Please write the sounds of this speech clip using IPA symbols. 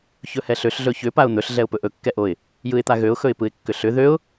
çɵhɛɬøɬ ɮɵçʏ paʊ̯n̪ɵɬ ɮɛʊ̯pɵʔɵ kːɛʔoɪ̯ | jɯɪ̯t̪aɣøʊ̯ xɵɪ̯pɯɪ̯kːʏɬʏ ðøʊ̯

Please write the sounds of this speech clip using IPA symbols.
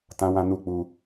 tã˦wã˦ nu˦˨k͡pu˧

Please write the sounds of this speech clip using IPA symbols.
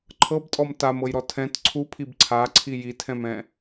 ǃʰɤbtʼɔm tamɤjɾɔ tʰɛ̃t ǀʰupʰib ǀʰaǀʰi jitʰɛ̃mɛ̃

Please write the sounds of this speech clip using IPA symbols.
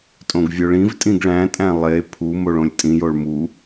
tʼõɡvʲoɭĩvtʼĩɡ ɭæ̃tʼæ̃ lˠe pʰu moɭõlʲtʼĩjoɭ mu

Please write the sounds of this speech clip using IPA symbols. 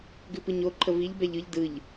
ɡʉpɯɲo ǃʰəviʎ bɛʎɯʎ dɯʎ

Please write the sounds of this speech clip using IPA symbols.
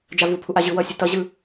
d͡ʒavupʰu ʔaʑɯwʌsʲu tʌʑɯ

